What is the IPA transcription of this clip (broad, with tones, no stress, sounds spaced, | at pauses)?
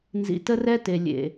n z ḭ˨ t ə˦ r ɛ˦ t e˨ lʲ ḛ˨